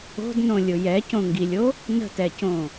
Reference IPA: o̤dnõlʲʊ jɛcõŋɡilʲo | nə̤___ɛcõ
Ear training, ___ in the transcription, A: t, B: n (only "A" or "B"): A